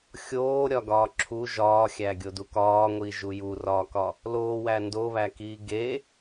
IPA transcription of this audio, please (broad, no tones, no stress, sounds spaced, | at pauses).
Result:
xʲ oː ɾʲ ɒ ɡ ɒː ǁʰ u ʒ ɒː xʲ æ ɡʲ o d u k ɒː ŋʷ iː ʒ u j u r ɒː k ɒ | l oː w æ n d o β æ k iː ɡ e